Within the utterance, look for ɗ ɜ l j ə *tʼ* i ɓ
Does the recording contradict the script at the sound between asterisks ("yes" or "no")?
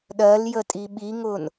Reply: no